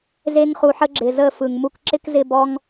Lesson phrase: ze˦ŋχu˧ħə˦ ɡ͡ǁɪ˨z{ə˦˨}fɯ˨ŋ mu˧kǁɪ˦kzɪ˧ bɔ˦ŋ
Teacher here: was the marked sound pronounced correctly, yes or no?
yes